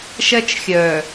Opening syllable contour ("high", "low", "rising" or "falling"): high